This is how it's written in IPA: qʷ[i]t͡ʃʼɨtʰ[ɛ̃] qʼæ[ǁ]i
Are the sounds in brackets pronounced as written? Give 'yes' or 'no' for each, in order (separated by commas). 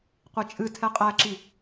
yes, no, yes